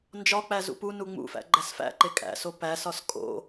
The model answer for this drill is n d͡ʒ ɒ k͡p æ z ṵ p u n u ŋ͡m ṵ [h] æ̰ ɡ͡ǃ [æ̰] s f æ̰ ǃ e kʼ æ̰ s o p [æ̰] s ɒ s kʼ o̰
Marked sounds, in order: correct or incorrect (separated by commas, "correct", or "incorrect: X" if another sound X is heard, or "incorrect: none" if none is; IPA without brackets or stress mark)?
incorrect: f, incorrect: æ, incorrect: æ